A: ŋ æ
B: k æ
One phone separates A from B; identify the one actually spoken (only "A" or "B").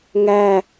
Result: A